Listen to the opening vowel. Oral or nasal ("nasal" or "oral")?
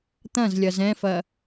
nasal